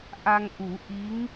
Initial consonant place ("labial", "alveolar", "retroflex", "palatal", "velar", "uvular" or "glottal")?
glottal